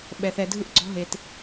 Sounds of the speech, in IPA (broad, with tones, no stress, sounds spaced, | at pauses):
ɓ ɛ˧ θ ɛ˧ dʱ ɯ˦ ʔ ɡ͡ǀ ɔ̤˦ ɦ e˧ t